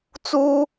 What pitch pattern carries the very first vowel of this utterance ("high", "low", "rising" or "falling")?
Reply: high